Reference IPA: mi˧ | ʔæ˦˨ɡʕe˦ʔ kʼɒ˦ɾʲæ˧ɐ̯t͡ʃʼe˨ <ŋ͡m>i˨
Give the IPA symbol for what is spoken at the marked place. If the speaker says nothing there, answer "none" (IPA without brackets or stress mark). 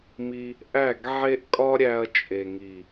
ŋ